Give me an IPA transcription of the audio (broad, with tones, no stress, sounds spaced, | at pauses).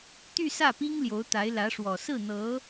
t̪ y˥˧ s ä˥˩ p i˥ ŋ l j o˧˥ ʊ̯ t̪ a˧˥ ɪ̯ l ä˧˥ ʂ w ɔ˨˩ s ɹ̩˥˩ n̪ ɤ˧˥